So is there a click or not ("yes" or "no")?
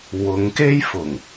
no